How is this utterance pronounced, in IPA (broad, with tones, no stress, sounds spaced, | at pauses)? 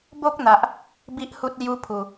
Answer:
b o˦ k̚ n̪ a˦ ʔ | b i˦ ʔ h u˦ t̚ l j u˦ pʰ u˧